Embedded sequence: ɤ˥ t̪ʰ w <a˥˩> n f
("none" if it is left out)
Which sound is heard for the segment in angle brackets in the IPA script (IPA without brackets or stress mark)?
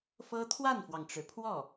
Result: a˥˩